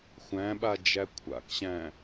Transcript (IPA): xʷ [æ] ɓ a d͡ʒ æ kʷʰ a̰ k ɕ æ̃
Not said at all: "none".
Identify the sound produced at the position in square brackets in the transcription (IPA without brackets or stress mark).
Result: æ̃